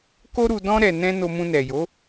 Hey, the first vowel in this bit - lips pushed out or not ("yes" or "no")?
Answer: yes